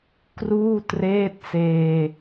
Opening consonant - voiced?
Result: no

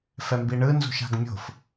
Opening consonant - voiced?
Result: no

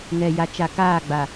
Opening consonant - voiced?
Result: yes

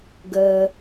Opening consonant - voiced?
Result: yes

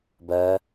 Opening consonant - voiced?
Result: yes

